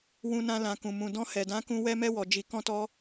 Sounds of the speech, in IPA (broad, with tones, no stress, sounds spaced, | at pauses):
w ũ˧ n ã˧ l ã˨ k ũ˨ m ũ˨ d ɔ̃˧ h ɛ˨ d ã˨˦ k ũ˧ w ɛ˦ m ɛ˦ w ɔ˧ d͡ʒ i˧ k ɔ̃˦ t ɔ˦